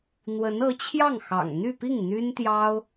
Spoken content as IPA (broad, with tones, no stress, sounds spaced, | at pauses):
n̪ w ə˧˥ n ɤ˧˥ t͡ɕʰ j ɑ˥˩ ŋ x ɑ̰˨˩ ŋ n̪ y˥˧ p i˥˩ ŋ n̪ y˥ n t̪ j ɑ˥ ʊ̯